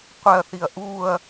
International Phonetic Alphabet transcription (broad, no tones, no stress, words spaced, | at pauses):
qʷɛɐ̯θiɐ̯ ʔuːɐ̯